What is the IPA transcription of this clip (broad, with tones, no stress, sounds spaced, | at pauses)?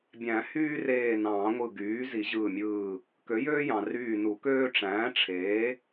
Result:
bʲ æ̃˨˩˦ h yː˥ r eː˧˩ n ɑ̃ː˨˩˦ ŋʷ ɯ˧˩ ɡ yː˩˥ z i˨˩˦ ʑ ɯː˧˩ mʲ ɯː˧˩ | k ø˩˥ j øː˥ j ɑ̃˩ r yː˧˩ n u˨˩˦ k øː˥ ʈ͡ʂ æ̃ː˩˥ ʈ͡ʂʰ eː˩˥